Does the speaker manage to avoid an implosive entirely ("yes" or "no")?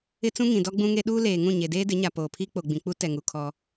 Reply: no